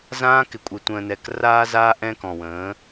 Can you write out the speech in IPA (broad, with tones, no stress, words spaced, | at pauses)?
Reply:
zãː˦kɪ˨kʷʼɪ˨ tʷə̃ː˨nɛ˨kraː˦ zaː˦ʔɛ̃ː˦k ɔ̃˨wə̃ː˨˦